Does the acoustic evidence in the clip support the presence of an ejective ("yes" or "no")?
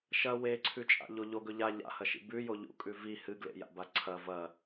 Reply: yes